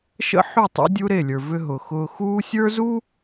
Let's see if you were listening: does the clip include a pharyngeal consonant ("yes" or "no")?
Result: yes